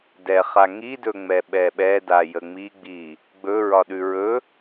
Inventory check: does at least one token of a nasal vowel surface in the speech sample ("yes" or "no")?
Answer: no